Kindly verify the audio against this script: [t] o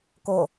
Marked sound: incorrect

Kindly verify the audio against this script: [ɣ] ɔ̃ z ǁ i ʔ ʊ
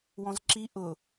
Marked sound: incorrect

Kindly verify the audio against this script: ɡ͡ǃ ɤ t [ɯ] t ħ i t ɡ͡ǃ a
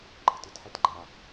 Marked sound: correct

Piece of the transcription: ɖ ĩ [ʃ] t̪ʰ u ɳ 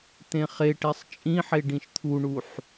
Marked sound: correct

